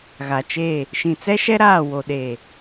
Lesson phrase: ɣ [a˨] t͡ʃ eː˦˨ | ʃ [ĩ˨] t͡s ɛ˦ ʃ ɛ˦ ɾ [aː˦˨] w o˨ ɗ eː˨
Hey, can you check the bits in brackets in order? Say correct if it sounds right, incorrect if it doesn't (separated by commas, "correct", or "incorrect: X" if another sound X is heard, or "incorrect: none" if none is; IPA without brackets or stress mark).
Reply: correct, correct, correct